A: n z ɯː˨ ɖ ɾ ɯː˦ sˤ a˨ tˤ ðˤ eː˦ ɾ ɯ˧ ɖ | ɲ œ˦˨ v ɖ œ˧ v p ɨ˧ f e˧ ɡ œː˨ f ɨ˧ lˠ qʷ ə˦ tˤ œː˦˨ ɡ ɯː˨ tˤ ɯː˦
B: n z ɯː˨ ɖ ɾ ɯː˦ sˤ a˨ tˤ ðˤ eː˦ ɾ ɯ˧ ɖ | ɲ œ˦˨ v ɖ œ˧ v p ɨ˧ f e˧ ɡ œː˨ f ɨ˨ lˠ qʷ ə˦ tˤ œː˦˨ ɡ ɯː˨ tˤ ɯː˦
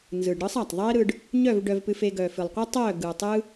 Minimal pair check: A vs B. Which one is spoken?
B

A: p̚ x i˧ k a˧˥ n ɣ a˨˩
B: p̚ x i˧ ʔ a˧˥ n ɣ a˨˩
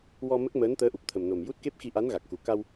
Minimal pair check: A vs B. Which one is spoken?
B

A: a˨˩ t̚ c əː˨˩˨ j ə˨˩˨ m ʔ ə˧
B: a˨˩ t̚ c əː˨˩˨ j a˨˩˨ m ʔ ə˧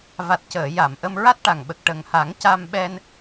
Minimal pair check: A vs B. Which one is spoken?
B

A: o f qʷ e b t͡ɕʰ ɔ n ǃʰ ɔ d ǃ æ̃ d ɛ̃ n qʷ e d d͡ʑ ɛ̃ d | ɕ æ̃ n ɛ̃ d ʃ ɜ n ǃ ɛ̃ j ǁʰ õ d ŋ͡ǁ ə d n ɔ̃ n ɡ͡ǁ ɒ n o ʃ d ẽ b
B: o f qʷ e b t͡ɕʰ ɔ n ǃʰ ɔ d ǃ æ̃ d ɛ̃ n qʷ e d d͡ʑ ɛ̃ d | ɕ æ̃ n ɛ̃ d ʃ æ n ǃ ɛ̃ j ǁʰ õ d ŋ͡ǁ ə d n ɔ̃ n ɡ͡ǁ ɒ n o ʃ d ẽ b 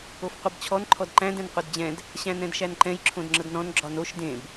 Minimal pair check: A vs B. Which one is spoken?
B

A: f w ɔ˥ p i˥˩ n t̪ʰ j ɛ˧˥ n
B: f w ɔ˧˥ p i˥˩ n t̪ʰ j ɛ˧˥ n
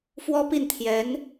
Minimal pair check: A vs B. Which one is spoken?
A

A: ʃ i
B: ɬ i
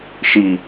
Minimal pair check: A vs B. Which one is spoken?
A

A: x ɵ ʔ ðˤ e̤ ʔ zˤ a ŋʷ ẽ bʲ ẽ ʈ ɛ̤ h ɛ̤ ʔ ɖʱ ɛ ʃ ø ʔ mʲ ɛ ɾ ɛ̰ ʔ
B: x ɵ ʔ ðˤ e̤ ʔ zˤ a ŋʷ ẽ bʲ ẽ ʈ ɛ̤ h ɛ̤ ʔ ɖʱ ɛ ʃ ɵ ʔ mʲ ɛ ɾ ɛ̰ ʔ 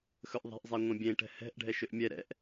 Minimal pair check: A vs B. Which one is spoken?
A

